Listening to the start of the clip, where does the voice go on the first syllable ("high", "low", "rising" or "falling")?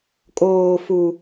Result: low